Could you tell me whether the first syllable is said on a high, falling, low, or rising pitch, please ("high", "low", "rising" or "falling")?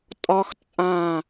high